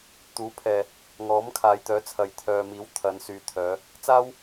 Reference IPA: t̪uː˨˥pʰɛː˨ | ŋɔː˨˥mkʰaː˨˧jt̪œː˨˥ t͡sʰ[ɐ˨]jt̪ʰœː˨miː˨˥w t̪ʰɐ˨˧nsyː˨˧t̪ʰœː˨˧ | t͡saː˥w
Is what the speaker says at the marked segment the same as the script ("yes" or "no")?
yes